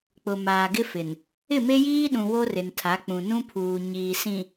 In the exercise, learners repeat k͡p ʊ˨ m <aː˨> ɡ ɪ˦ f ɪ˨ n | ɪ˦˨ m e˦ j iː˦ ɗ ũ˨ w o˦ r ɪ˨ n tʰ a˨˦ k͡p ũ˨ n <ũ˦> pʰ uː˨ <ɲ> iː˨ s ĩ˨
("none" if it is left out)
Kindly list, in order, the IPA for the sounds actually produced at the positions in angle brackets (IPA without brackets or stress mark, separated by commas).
aː˨, ũ˦, ɲ